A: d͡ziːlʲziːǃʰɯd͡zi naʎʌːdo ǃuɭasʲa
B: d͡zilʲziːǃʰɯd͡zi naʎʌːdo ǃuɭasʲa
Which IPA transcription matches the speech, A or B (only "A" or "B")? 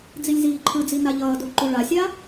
B